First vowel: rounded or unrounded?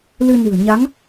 unrounded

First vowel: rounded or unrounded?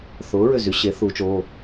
rounded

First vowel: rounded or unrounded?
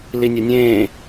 unrounded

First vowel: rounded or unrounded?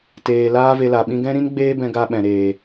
unrounded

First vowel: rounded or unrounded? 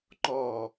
rounded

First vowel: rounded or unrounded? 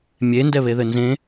unrounded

